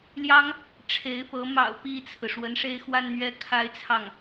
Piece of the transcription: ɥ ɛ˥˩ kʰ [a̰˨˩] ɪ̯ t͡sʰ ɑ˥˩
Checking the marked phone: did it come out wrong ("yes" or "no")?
yes